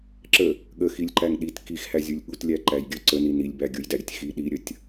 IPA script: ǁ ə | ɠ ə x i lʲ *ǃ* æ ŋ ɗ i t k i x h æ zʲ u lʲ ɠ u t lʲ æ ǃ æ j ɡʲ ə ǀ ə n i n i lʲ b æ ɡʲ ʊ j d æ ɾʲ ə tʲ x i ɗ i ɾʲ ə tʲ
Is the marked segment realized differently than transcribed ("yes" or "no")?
no